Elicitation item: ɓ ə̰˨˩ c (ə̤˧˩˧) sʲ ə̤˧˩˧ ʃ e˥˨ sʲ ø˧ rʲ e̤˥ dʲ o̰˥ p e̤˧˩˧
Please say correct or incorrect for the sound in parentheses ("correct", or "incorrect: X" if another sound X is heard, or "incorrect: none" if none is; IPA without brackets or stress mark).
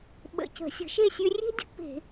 correct